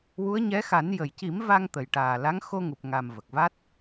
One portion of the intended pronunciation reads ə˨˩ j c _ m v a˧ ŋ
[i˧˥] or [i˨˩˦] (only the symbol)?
i˨˩˦